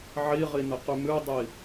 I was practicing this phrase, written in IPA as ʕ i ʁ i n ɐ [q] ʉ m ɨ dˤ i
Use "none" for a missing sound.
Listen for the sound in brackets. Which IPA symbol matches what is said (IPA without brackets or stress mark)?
q